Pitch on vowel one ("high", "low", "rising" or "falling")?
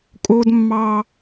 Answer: high